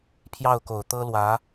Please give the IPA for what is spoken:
pʰ j ɑ˥˩ ʊ̯ k o˨˩ ʊ̯ t̪ ɤ˥ l w ä˧˥

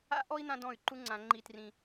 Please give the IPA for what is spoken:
a̰˦ ʔ ɔ˦ i̯ n̪ ã˦ d ɔ̃˦˨ y̯ ǃ u˦ ŋ͡ǀ ã˧ ŋ͡ǃ i˧ t r ĩ˧

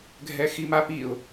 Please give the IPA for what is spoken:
ɡʱ ɛ x i m a p i ʊ̯

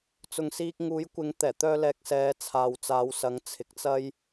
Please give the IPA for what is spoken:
t͡s ʊ˨ ŋ s iː˧ k̚ ŋ uː˨˥ j kʷ ɪ˨˥ ŋ t̪ ɛː˨˩ t̪ œː˧ l ɛː˨ k̚ s ɛː˨˧ t͡sʰ aː˨ w t͡s aː˨˧ w s ɐ˨˧ ŋ t͡sʰ ɪ˨ k̚ t͡s ɐ˥ j

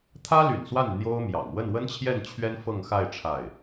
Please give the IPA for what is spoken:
t̪ʰ ä˥ l y̰˨˩ n s w a˥˩ n n̪ j o˥ ʊ̯ m j ɑ̰˨˩ ŋ w ə˥˩ n w ə˥ n t͡ɕʰ j ɛ˥˩ n t͡ɕʰ ɥ ɛ˥ n f ɤ˥˧ ŋ x a˥˧ ɪ̯ ʈ͡ʂʰ a˥˩ ɪ̯

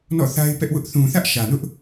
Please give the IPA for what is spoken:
n ɔ̰˦˨ θ a˦ ɪ̯ p ɛ˦ ʔ w ʊ˦ ʔ θ ũ˨ θ ä˦ ʔ ʃ ä˨ n ʊ˦ ʔ

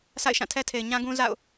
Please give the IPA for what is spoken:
sʰ a̰˦˨ ɪ̯ ʃ ã˦˨ tʰ ɛ˦ tʰ e˨ ɪ̯ ɲ ã˦ ɡ ũ˦ z a̰˦˨ ʊ̯

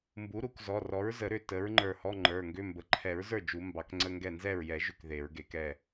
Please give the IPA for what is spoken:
m b u˩˥ ɾ u˨˩˦ k z ɔ˩˧˩ r ɔ˩˥ ɹ z ə˨˩˦ ɾ ʏ˥˩ t ə˩˥ ɹ ŋ͡ǃ ə˞˧˩ h ɔ˧˥˧ ŋ͡ǃ ə˞˩˧˩ ŋ ɡ ʏ˧˥˧ m b ə˩˧˩ ǃʰ ɛ˨˩˦ ɹ z ə˞˥˩ d͡ʒ u˨˩˦ m b ɑ˨˩˦ k ŋ͡ǀ ə˧˥˧ ŋ ɡ ɛ˥˩ n z ɛ˥˩ ɹ j ɛ˨˩˦ ʒ ʏ˥˩ k ð e˨˩˦ ɹ ɡ e˨˩˦ k ɛ˧˩

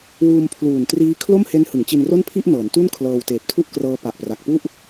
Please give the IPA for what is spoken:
w uː˧ m pʰ l uː˨˩ n t r iː˦˥ kʰ l o˥˩ m h e˦˥ n h ɯ˩˦ ŋ t͡ɕ i˧ n r o˥˩ n pʰ i˥˩ ʔ n ɤː˩˦ n t u˥˩ n kʰ l ɤː˧ w t eː˨˩ p̚ tʰ u˥˩ ʔ k r ɤː˦˥ p a˨˩ ʔ p r a˨˩ k̚ p u˥˩ ʔ

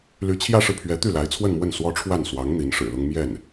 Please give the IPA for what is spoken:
l y˧˥ t͡ɕʰ j ä˥ ʂ ɻ̩˨ pʰ ɥ ɛ˧˥ t̪ y˥˩ l a˧˥ ɪ̯ t͡sʰ w ə˥˧ n m w ə˥˩ n s w ɔ˥ ʈ͡ʂʰ w a˥˩ n s w ɑ˧˥ ŋ n̪ i˧˥ n ʂ ɻ̩˨˩ l ʊ˥ ŋ m j ɛ˥˩ n

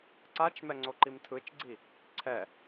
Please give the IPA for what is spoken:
ǀ a t͡ʃ m ɛ ŋ͡ǀ o ǃ i m tʰ ɯ t͡ʃ ɡ͡ǀ i | ǀʰ ɛ

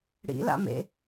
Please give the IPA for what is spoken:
ɽ ḭ l a̰ m ḛ

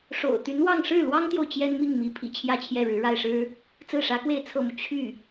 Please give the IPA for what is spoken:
ʂ o̰˨˩ ʊ̯ t̪ y˧˥ n w ɑ˥˧ ŋ ʂ ɻ̩˥˩ l w ɑ˥ ŋ t̪ j o˨ ʊ̯ t͡ɕ j ɛ˥ n m i˥˩ ŋ m i˧˥ pʰ ḭ˨˩ t͡ɕʰ j ä˥˧ t͡ɕʰ j ɛ˥˩ ɻ ɻ̩˧˥ ɻ a˥˩ ɪ̯ ʂ ɻ̩˥ | t͡s ɹ̩˥˩ ʂ ä˧˥ k w e˥˧ ɪ̯ t͡sʰ ɤ˥˩ m u˩ t͡ɕʰ y˥˩

